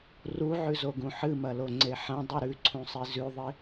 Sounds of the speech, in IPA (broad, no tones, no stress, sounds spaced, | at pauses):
r u ʕ ʉ z o ɡ ũ ħ ɨ m ɐ l o ŋ͡ǀ e ħ ɐ̃ dˤ ʉ ɾ ʉ ǀʰ ũ sˤ i z ʉ ðˤ i